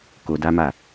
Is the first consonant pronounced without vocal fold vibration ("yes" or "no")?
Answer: yes